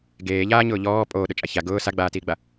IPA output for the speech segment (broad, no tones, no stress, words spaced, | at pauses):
ɡeːʎaːɲʊː ʎɔː pʼoːɗʊt͡ʃʼa ça ɡʊː saɡ͡baːtiːɡ͡ba